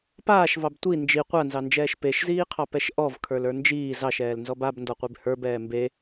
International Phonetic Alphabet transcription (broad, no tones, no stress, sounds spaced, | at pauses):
p aː ʃ v ɑ b tʷ i n d͡ʒ i qʷ a n z ɑ n d͡ʒ ɛː ʃ p e ʃ z iː qʰ ɑ p ɛ ʃ ʔ ɔ v kʰ ə˞ l ə˞ n d͡ʒ iː z ɑ ʃ ɛː l n z ɔ b a b n d ɔ qʷ e b h ə˞ b ɛː m b e